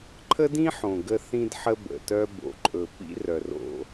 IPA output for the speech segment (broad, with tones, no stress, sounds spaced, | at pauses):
ǃʰ ə˦ d ĩ˦ ħ õ˨ ɡ ə˦ θ ĩ˦ d ħ ə˦ b ə̰˨ t œ˦ b o̰˨ ǃʼ ɵ˨ p ḭ˦ r œ˨ r o̰˦